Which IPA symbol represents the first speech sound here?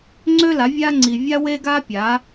ŋ͡ǀ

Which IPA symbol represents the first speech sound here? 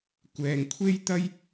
kʷ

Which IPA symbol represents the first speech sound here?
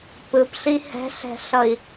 p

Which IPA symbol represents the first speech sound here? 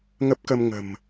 ŋ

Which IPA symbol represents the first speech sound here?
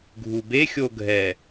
ɡʱ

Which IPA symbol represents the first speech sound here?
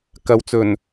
k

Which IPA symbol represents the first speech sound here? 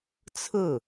t͡sʰ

